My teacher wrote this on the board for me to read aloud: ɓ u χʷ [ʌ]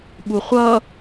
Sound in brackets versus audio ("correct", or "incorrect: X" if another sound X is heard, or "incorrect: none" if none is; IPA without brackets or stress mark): correct